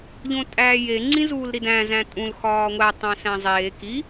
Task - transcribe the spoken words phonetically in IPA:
ʎ õ tʼ æː j e ŋ͡ǀ ĩ z uː l ɾ i d æ̃ z æ̃ tʼ ũ l x ɒː ŋʷ æ tˤ æ̃ s æ̃ zˤ eː k i

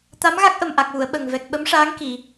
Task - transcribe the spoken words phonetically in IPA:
t̪ a˧˥ m ɣ a˦˥ k̚ ʔ ə˨˩ m ʔ a˨˩ k̚ w u˨˩˨ ə̯ ɓ ə˨˩ ŋ v ɛ˨˩ k̚ ɓ ə˧˥ m ʂ aː˧˥ ŋ k i˨˩˨

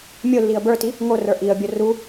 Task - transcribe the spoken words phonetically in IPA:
mʲ o lː i ə̯ b ə˞ t i | ŋ o r ə˞ ʔ i ə̯ bʲ o r u

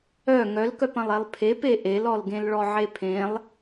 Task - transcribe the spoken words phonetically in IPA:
œ ŋ œ l k œ p ɐ̃ lˠ e lˠ pʰ e p e ʔ e l ɔ l ɡ ẽ l ɭ ɔ ʕ e pʰ ẽ lˠ

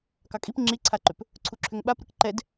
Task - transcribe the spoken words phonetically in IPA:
k ɑ kʼ i p ŋ͡ǁ i ǀʰ a ǃ ʏ p | ǀʰ u ǁʰ ʏ ŋ ɓ a p ɾ ɯ k ǃ ɛ d

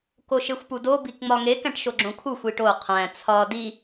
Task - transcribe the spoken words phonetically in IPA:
k o ʃ e xʷ p u d o b i k ŋ͡m ɒ ŋ e k æ̃ ʈ ʃ o ɡ͡ǁ õ kʰ u xʷ i ʈ o qʰ æ̃ t͡sʰ ɒ d i

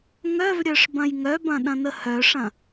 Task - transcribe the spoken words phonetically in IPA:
ŋ œ v ɾʲ œ ʂ b ɐ̃ j ŋ œ b ɐ̃ ɗ ɐ̃ n ə h œ ʂ ɐ̃

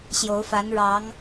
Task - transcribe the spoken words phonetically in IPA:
ɕ j o˧˥ ʊ̯ f a˧˥ n ɻ ɑ˧˥ ŋ

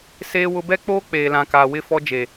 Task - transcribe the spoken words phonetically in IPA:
s eː˦ w ʊ˦ b ɛ˦ k͡p oː˦ k͡p eː˨ l ã˨ k aː˨ w ɪ˦˨ f ɔ˦ d͡ʒ e˨

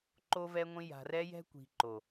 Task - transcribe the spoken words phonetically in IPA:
ǃ o˦ v ɛ˦ ŋʷ ĩ˦ j a̤˨ r ɛ˦ j ɛ̤˦ kʷ i̤˨ ǃ o˨

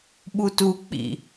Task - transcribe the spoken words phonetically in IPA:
ɓ u t u k͡p ḭ

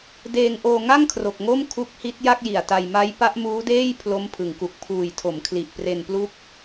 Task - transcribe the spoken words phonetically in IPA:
d eː˧ ŋ ʔ oː˧ ŋ a˥˩ ŋ kʰ r o˨˩ k̚ ŋ o˥˩ m kʰ u˦˥ k̚ h i˦˥ t̚ j a˥˩ k̚ j i˨˩ a̯ t a˧ j m a˦˥ j p a˦˥ ʔ m uː˦˥ d eː˥˩ j pʰ l o˦˥ m pʰ ɯ˩˦ ŋ k u˨˩ k̚ pʰ uː˨˩ j tʰ o˩˦ m kʰ l i˨˩ ʔ p r e˧ n p l u˦˥ k̚

